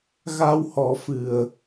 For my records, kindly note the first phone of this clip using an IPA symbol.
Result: ɣ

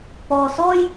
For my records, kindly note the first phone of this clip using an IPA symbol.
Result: p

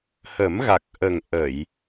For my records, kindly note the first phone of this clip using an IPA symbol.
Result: h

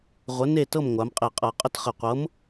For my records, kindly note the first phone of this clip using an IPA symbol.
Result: ʁʷ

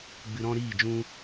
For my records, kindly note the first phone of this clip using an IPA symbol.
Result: ɡ͡b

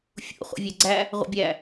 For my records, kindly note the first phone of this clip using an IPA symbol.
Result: fʲ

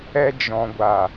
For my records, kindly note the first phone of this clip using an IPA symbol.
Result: ɛ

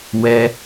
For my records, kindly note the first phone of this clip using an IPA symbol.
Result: w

